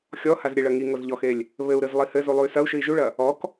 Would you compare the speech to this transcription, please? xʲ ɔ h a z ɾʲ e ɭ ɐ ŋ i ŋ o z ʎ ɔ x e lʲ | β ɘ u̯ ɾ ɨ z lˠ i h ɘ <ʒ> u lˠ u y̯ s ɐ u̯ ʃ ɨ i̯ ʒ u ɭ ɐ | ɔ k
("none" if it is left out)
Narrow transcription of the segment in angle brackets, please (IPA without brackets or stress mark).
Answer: z